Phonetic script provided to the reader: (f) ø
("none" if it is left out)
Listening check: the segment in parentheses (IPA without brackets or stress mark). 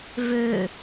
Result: v